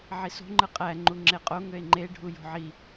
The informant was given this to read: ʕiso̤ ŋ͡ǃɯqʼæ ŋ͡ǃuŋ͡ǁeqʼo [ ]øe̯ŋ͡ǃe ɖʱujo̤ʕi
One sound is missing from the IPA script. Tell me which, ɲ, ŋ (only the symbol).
ŋ